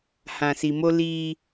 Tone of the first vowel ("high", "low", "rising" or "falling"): low